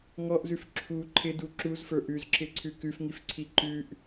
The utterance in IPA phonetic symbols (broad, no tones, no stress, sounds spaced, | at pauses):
ŋ ɔ ʔ z ʉ f ǁʰ u ǃʰ ɪ d u ǁ u z f ə˞ ʔ ʉ z ǁ ɪ ǀʰ ʉ k ʉ f ŋ i f ǀʰ i ǃ ʉ ʔ